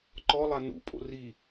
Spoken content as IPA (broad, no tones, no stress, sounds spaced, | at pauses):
ǃ ɔ lˠ a n ṵ pʼ o̰ r i